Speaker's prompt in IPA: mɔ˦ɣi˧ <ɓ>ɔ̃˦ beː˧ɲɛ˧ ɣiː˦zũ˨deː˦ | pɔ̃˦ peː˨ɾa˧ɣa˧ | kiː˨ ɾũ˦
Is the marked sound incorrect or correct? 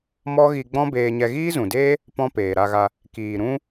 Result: incorrect